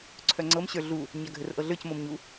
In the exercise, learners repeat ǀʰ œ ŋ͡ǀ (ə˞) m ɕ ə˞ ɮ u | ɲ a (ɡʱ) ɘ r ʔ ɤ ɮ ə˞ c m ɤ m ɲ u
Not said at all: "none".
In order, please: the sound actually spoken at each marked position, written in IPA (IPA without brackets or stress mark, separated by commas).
ɤ, ɡʱ